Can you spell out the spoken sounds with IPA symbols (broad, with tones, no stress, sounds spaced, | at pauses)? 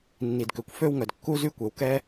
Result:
nː i˩ d k ø˩ kʷ f ø˥ w ŋ œ˩ d kː u˥ z y˥ kʷ ɛ˩ w k ɛ˥